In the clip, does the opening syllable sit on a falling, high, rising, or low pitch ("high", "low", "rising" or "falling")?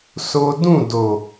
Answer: high